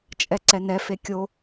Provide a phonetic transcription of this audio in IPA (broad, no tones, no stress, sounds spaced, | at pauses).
t͡ʃʼ ɛ ǀ ɛ n ɛ f e kʲ o